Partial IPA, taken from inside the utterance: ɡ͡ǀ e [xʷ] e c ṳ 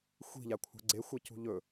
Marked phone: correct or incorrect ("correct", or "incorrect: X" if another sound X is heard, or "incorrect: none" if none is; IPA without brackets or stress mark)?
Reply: correct